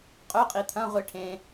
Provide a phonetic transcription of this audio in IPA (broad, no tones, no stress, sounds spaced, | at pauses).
qʼ ɵ qʼ i t̪ʰ ɐ̃ ʁʷ i ʈʰ ẽ